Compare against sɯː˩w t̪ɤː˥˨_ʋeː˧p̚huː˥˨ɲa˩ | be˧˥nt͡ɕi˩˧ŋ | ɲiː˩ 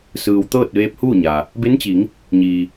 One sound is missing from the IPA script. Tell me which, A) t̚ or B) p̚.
A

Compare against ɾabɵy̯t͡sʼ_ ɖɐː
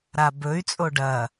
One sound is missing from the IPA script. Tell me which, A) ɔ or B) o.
B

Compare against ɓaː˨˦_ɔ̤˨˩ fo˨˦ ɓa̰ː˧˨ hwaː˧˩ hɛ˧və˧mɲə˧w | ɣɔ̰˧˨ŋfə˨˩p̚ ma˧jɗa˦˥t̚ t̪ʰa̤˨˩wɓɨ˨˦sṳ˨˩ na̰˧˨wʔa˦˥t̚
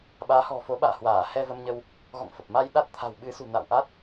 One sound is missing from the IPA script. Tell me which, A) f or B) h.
B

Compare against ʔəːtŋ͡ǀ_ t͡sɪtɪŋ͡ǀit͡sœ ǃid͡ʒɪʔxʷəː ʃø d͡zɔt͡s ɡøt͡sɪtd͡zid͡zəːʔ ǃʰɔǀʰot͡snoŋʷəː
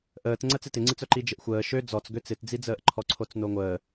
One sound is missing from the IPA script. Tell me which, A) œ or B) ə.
B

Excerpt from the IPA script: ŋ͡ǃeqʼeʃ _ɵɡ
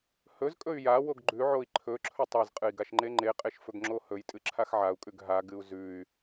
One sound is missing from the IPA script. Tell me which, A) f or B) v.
A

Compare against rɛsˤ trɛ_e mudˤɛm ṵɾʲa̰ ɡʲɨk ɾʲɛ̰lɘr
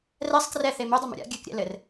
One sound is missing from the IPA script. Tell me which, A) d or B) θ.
B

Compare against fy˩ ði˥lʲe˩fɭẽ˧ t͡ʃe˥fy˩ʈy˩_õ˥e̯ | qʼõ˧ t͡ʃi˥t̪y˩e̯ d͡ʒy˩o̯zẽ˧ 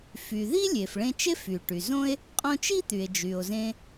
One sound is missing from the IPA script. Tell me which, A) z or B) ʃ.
A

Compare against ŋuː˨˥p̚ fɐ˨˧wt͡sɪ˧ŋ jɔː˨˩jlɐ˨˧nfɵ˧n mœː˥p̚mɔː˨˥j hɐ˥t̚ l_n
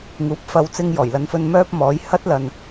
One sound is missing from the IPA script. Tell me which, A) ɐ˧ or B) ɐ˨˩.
A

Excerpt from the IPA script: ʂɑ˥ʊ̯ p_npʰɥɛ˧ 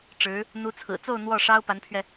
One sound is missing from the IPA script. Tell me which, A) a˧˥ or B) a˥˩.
A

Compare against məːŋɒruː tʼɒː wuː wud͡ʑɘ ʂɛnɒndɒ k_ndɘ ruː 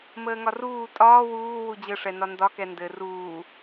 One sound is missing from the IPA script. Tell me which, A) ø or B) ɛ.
B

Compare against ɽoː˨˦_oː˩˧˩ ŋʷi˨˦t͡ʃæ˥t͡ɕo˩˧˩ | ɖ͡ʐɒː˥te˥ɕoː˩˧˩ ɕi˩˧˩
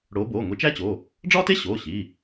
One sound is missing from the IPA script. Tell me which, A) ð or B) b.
B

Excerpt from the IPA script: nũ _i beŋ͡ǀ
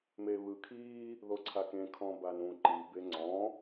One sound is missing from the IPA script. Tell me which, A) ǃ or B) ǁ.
A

